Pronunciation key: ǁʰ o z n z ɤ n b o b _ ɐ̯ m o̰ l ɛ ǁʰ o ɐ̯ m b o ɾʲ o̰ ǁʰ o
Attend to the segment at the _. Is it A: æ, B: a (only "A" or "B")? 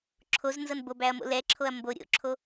A